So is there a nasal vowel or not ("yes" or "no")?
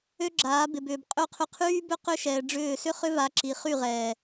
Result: no